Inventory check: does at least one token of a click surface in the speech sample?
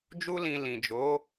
no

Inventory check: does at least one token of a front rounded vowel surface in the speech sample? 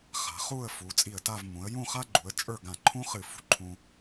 no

